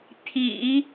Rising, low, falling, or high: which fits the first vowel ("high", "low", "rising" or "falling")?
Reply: low